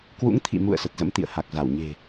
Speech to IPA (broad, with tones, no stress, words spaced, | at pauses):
kwṵ˧˥ŋt̪ʰḭ˧˨mṵ˧˨ə̯ sə˨˩t̚zə̰˧˥m t̪ḭ˧˨ə̯ha˨˩k̚za˧˩w ɲe̤˨˩